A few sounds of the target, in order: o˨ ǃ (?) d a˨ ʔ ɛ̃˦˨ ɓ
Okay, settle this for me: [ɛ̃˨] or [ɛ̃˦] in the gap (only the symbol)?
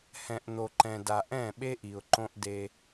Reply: ɛ̃˨